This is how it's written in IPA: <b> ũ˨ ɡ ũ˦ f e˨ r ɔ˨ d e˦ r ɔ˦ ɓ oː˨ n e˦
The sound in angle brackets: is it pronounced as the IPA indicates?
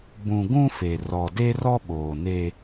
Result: yes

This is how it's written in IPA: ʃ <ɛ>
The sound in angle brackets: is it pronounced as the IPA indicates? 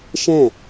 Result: no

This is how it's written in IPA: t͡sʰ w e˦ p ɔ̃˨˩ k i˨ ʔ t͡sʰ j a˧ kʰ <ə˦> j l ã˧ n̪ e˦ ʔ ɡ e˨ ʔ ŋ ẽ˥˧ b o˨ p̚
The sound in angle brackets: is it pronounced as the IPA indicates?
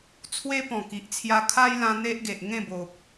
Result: no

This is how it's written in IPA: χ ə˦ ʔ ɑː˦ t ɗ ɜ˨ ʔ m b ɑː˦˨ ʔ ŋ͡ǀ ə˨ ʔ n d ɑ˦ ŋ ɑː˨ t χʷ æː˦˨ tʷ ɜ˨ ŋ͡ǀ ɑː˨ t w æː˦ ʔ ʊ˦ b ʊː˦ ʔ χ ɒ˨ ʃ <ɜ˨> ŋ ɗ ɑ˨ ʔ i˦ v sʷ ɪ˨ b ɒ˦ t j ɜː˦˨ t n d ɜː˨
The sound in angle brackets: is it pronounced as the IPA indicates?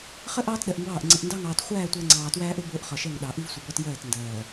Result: no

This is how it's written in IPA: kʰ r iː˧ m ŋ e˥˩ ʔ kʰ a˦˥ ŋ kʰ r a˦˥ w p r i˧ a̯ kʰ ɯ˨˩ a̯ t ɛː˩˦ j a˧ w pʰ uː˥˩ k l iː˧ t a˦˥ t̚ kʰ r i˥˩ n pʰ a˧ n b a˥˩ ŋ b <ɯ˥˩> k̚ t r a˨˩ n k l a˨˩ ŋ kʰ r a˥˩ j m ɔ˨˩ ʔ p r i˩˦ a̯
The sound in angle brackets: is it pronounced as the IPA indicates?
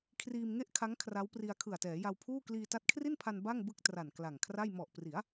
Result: yes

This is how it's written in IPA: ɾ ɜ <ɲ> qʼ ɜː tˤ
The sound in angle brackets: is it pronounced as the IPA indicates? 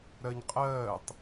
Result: yes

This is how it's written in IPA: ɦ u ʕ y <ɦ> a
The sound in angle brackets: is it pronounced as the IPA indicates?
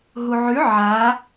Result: no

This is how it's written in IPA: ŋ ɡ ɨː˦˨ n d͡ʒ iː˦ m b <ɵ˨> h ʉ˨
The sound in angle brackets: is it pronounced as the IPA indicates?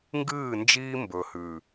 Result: yes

